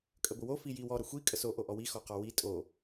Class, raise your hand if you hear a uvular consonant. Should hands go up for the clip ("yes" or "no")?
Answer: yes